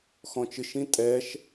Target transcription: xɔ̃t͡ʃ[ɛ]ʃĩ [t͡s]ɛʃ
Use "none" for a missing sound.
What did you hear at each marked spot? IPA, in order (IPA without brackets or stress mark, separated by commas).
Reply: ɨ, tʼ